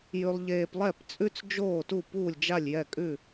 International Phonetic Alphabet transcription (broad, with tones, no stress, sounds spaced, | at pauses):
j ʉ˥ lˠ ʎ eː˥ p lˠ ɛ˥˧ p t͡sʼ ʉ˥ t͡s d͡ʒ oː˥˧ t u˥˧ p uː˥˧ lʲ d͡ʒ a˥˧ lʲ j ɛ˥˧ kʼ ʉ˥˧